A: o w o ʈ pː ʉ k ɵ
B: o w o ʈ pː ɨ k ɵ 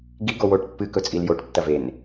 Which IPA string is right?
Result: B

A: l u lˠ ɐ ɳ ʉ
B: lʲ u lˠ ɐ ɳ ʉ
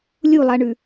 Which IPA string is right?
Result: B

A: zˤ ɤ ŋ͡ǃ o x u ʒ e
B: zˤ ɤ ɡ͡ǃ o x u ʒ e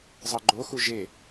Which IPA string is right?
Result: B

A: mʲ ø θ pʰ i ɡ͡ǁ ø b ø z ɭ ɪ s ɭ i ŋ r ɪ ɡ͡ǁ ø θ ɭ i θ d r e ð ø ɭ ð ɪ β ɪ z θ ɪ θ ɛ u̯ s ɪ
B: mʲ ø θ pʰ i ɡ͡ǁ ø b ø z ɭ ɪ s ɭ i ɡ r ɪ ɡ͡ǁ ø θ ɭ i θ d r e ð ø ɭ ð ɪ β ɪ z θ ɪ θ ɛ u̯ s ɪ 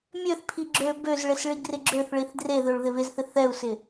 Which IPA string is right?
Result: B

